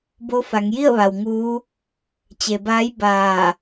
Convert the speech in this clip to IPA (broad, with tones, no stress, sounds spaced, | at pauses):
b o˧˥ f a˩˧ ŋ j i˥˨ ə̯ ʋ a˩ w ŋ uː˧˥ | t͡ɕ e˩ b aː˧˥ j b aː˧˩